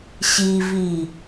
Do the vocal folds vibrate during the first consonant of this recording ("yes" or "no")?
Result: no